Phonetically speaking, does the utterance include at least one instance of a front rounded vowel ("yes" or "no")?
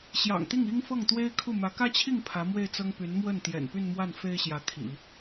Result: yes